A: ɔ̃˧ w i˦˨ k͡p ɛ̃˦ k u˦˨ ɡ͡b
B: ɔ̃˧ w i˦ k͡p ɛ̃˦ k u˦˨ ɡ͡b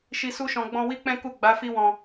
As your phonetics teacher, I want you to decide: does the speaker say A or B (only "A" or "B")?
B